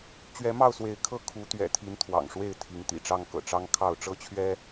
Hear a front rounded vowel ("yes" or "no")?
no